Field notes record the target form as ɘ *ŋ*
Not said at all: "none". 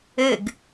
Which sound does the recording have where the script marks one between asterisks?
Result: ɡ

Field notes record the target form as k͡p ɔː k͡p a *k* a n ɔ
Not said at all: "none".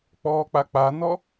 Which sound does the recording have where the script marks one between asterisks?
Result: k͡p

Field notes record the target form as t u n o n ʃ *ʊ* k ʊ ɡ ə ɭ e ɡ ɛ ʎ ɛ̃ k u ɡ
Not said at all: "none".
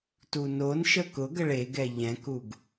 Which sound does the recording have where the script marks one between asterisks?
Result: ə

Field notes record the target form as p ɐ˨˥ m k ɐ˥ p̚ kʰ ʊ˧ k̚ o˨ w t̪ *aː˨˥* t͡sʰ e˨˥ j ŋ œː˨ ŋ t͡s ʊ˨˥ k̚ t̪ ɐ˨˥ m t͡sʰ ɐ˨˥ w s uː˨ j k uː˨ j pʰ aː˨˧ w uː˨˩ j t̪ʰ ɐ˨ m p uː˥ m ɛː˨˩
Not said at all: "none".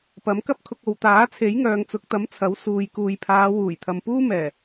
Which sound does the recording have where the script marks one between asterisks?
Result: aː˨˥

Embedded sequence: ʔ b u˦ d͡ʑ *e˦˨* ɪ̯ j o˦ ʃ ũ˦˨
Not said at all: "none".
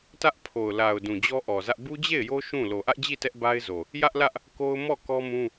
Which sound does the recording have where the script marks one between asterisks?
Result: e˦˨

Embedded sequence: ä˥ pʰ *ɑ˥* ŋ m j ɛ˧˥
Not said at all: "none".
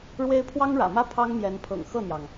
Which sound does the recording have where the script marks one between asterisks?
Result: ɑ˥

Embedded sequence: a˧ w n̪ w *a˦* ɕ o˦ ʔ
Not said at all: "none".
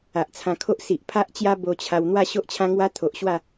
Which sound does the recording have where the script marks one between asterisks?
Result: a˥˧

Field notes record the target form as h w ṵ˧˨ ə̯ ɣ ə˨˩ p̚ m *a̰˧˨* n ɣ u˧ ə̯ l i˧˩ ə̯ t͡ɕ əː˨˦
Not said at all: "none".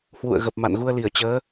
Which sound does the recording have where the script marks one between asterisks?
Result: a̰˧˨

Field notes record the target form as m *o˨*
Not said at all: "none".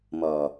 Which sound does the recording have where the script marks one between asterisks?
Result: ɔ˨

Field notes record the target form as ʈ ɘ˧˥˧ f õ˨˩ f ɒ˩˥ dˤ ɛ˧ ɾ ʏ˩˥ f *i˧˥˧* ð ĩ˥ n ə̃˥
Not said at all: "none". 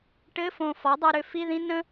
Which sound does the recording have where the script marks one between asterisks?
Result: i˧˥˧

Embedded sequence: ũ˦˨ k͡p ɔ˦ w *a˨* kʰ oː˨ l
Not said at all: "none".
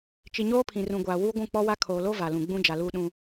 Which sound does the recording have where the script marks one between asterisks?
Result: a˦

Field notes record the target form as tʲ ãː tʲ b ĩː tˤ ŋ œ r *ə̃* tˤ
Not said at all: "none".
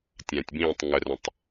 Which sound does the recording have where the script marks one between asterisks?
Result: ə̃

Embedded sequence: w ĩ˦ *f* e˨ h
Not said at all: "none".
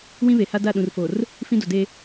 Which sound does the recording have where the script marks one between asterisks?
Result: β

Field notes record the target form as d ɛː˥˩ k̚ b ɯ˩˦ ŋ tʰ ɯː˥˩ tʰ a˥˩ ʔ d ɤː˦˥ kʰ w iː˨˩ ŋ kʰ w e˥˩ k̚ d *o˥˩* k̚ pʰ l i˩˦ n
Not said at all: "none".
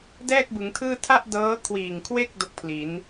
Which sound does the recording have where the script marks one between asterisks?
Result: o˥˩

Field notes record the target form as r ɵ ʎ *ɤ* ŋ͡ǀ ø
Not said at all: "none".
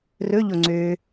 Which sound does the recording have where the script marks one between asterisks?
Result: o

